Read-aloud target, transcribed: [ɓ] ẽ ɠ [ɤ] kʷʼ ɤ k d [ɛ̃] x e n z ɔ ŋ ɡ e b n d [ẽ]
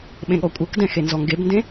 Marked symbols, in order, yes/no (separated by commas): yes, no, yes, yes